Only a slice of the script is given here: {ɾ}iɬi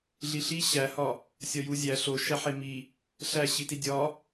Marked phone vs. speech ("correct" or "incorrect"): incorrect